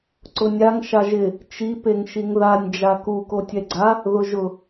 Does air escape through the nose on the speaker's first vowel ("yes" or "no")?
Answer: no